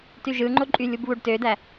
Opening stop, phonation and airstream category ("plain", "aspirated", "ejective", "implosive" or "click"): plain